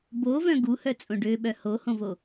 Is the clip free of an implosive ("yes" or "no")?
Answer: no